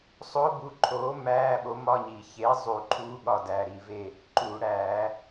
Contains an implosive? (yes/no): yes